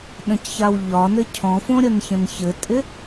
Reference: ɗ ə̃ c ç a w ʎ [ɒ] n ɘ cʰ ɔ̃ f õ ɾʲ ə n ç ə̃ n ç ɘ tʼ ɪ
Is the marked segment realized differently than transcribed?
no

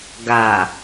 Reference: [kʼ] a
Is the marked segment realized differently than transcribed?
yes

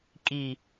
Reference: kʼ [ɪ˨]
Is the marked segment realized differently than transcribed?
yes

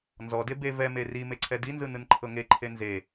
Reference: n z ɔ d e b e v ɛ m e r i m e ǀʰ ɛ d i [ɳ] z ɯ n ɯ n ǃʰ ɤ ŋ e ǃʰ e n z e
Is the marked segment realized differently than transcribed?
yes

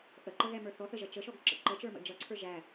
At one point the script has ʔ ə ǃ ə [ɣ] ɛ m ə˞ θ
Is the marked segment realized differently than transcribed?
no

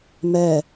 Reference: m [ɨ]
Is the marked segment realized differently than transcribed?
yes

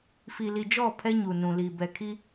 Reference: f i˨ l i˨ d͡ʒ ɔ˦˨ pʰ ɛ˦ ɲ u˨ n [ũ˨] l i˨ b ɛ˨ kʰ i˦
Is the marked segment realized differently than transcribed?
no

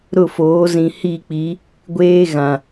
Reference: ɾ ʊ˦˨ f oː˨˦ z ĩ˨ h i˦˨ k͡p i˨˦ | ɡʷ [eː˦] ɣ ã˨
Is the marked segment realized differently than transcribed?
no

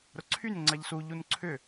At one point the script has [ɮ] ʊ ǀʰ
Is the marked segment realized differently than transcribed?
yes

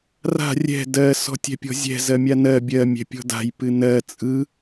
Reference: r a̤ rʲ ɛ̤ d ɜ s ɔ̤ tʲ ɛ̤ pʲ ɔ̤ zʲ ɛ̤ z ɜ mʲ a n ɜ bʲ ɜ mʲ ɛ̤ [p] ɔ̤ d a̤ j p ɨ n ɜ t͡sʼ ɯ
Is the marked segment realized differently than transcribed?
yes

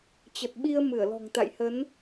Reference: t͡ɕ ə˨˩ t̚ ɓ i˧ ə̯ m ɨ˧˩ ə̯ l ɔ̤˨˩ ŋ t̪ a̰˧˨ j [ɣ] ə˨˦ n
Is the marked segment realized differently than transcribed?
yes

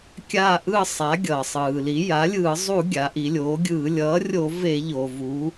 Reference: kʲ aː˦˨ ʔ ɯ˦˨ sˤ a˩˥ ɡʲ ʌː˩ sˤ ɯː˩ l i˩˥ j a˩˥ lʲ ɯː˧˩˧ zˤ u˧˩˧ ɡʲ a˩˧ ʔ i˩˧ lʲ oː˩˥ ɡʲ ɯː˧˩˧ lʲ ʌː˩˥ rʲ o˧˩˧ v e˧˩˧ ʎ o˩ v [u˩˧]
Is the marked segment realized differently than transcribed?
no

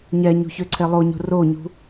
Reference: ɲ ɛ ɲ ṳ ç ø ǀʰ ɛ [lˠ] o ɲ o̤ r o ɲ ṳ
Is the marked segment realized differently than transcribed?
no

